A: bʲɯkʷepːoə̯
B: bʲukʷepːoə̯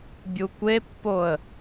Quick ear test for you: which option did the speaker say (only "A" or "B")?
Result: B